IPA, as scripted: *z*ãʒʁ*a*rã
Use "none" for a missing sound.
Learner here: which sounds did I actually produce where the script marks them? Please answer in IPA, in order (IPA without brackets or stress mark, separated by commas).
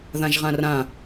ð, ã